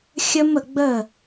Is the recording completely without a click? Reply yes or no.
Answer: yes